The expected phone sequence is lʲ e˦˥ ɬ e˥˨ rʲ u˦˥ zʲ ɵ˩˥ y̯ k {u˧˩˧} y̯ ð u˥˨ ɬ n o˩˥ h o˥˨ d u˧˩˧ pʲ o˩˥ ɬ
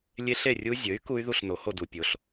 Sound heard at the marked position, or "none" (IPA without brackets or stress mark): u˦˥